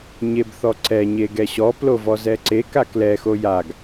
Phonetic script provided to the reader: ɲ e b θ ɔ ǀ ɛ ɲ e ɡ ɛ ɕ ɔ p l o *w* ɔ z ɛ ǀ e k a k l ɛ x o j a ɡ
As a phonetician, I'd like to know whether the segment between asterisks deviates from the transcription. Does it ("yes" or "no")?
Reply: yes